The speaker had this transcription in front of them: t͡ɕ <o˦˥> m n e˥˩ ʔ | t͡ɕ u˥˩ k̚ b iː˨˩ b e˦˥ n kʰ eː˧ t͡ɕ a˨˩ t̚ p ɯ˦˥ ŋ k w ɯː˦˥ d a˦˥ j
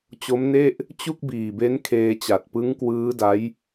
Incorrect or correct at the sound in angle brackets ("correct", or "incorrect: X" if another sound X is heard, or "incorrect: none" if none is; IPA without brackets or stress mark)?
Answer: correct